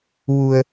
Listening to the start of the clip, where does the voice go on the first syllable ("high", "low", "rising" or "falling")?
low